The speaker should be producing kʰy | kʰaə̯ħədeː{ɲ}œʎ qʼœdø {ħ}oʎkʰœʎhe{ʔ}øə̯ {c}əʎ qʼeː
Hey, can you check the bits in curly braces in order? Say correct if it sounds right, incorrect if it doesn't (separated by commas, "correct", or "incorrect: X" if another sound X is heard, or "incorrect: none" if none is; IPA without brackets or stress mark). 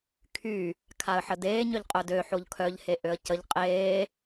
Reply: correct, correct, correct, correct